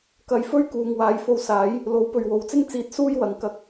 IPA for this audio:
kɐ˨˧jfɵ˥ɥ kuː˨ŋwaː˨˧jfo˧wsaː˨˥j | lo˨˥w pɵ˨ɥwo˨wt͡sɪ˥ŋ t͡siː˨˥t̚ suː˥jwɐ˨˧ŋ kɐ˧k̚

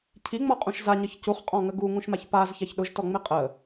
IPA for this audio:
cʰiŋ͡mɔqʼũʃ zaɲəç cuχqʼɔ̃ŋə ɡuŋũʃmaç pazçaç ɗʊʒtɔŋ͡me qʼə

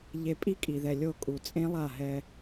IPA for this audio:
ʎe˨ pʼi˦kʼi˨ðɛ˨ lʲo˦˨kʼu˨ t͡sʼẽ˦lˠa˦˨ɦɛ˦

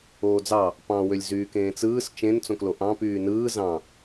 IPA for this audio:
oːd͡zɑ | pɑ̃wølʲ zyːkẽːt͡sɯːs t͡ʃẽn t͡sõkloʔɑ̃ pyːnɯː zɑ̃

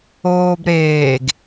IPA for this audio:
oːbɾeːɡ

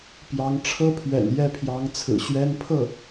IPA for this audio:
pjɑ˧˥ŋ ʈ͡ʂʰɤ˥pʰɥɛ̰˨˩njɛ˥˩pʰjɑ˧˥ŋ t͡sʰɹ̩˨˩ɕɥɛ˥n pʰɤ˥˩

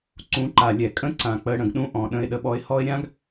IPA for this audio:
ǀũ˨˦ǃa˨ lʲɛ˨ kʼə̃˦ ǀã˨k͡pə˨˦ ɽə̃˨ɡɗũ˦ʔɔ̃˨ ɗə̃˦ɪ̯ɗə˦ɓɔ˦ɪ̯ hɔ˦ɪ̯ɾʲã˦ɡ

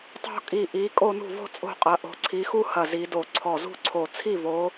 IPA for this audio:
tˤo̤˥˧kʼi˧˩ ʔi˨˦ kʼo˥˧nṳ˥˩ vo̤˥˧t͡sʼo̤˥˩qʼɐ˨˦ ʔo̤˨˦ǀʰi˨˦xu˥˧hɐ˧˩ zi˨˦do˧˩ ǀʰɔ˧˩zṳ˥˧ǀʰo˧˩ t͡sʰi˥˩vo˨˦

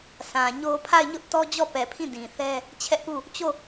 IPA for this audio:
sʰã˨ɲo˦ pʰa˦˨ɪ̯ɲʊ˦ʔtɔ˦d͡ʑɔ˦˨ pɛ˨pʰĩ˦˨ dĩ˨θɛ˦ | t͡ɕʰɛ˦ʔpu˦˨ | t͡ɕo˦˨

